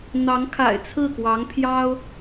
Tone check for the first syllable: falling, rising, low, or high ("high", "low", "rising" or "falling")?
rising